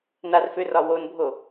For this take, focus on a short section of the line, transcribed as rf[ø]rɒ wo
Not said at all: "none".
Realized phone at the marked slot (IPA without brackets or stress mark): ø